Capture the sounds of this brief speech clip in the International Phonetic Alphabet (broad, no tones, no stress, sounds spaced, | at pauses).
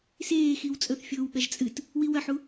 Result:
s eː x i w t͡sʼ ɵ θ fʲ oː w ɠ ɐ ʒ t͡sʼ ɨ t | w i w ɐ ħ u